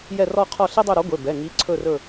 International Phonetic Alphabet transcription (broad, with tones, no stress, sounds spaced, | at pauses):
j ɛ˦˨ r ɔ˦˨ qʰ ɔ˦˨ ɬ e˥ dˤ ɵ˦˨ ɾ ɔ˨˥ ɡʷ e˩˧˩ b ɛ˩˧˩ ŋ i˨˥ ǀʰ ɵ˦˨ r ɵ˦˨